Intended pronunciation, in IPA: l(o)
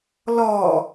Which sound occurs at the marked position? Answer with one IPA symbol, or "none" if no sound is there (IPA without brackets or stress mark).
ɔ